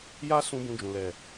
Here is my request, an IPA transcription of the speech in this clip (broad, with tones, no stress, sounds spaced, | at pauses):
j a˦ s ũ˧ b ũ˧ d͡ʒ ũ˨ l ɛ˨